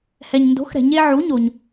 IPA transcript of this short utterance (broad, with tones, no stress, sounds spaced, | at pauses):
h ɛ˩ ɲ n d o̤˩˥ x ɾ ɛ̤˩ ɲ e˧ ʕ u˩˥ ɲ o˩ ɲ